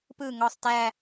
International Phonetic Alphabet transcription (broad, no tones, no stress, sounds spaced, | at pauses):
p ɯ ŋ ɔ sˤ t æ